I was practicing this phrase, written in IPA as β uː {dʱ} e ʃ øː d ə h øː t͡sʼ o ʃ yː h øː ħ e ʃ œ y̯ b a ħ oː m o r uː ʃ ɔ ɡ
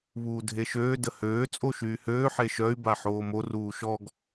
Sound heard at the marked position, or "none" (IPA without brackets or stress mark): dʱ